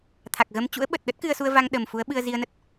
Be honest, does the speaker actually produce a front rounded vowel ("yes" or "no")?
no